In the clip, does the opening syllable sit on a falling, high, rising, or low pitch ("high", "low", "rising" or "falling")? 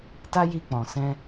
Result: high